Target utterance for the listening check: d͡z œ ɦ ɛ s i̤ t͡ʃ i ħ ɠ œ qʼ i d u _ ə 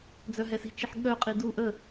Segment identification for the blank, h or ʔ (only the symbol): ʔ